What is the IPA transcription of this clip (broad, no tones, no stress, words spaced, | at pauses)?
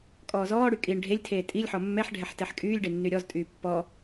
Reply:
kʼɔːzɔːɽy kʼiːɳɖʱelʲtʰeː tʼilʲħɔ mːɛħɖʱɛħ tɛħkʼyːlʲɖe nːyɾʲɔztʼyː pːɔ